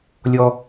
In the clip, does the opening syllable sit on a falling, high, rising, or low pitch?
high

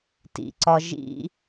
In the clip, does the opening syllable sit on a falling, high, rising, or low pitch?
low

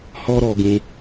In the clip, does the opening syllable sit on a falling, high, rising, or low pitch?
high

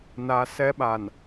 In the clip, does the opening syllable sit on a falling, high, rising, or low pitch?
high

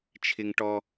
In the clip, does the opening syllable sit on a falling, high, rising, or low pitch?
high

